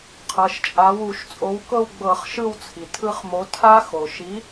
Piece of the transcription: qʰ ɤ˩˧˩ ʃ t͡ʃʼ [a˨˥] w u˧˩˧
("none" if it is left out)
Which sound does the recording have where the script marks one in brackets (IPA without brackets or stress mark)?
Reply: a˨˥